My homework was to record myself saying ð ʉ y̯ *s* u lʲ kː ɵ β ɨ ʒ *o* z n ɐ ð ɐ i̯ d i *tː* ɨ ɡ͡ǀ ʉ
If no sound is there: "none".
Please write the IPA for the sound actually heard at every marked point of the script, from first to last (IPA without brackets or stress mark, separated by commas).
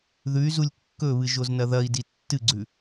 z, o, tː